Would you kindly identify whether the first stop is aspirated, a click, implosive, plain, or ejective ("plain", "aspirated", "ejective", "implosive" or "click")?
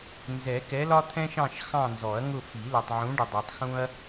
plain